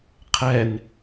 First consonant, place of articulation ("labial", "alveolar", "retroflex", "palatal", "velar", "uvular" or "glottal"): uvular